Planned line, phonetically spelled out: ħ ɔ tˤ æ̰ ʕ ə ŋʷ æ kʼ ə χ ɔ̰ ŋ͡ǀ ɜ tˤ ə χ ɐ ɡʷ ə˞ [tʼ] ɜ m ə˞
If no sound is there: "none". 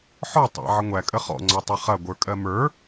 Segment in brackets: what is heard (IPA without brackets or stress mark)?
kʼ